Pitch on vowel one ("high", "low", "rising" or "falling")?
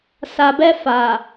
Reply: low